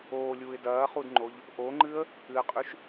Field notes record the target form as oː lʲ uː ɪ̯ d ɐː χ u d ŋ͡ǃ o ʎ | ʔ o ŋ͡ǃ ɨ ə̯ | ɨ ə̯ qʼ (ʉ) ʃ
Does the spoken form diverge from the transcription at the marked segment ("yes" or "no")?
no